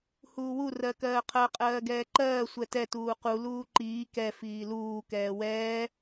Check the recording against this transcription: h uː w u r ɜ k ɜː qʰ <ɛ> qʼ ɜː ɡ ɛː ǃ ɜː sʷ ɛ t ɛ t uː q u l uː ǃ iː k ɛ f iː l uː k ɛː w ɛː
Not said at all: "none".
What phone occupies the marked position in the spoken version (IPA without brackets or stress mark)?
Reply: ɜ